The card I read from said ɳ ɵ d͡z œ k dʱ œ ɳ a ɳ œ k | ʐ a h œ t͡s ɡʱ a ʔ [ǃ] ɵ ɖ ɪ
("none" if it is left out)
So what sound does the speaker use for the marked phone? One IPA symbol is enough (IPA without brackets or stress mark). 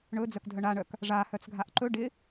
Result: ǃ